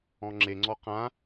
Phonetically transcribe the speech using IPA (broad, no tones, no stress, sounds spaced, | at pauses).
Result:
ɔ̃ ŋ͡ǁ e ŋ͡ǀ ɔ q ã